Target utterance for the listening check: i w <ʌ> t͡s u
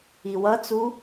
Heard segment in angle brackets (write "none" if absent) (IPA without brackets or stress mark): ʌ